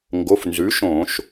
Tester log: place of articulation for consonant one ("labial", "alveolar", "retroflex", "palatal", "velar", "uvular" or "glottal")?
velar